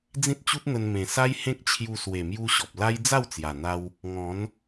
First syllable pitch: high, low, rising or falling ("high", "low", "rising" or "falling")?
high